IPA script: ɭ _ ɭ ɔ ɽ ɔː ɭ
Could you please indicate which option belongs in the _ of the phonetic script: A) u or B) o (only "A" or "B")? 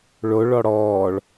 B